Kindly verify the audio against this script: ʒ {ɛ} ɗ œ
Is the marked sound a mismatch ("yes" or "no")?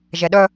no